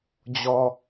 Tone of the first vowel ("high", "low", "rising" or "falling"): low